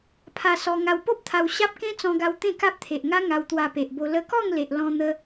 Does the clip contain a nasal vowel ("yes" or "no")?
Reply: yes